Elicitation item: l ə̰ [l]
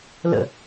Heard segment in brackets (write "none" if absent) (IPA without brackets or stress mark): none